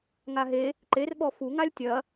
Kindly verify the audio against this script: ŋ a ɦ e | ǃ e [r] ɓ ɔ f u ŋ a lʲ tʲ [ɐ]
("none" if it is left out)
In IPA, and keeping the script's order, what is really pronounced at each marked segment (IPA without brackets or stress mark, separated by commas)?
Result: r, ɐ